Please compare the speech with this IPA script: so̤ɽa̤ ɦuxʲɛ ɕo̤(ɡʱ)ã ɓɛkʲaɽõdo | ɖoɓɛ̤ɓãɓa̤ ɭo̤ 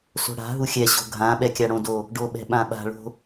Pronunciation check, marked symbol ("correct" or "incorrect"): correct